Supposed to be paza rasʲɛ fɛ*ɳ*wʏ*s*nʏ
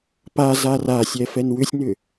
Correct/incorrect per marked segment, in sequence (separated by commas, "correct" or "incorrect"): incorrect, incorrect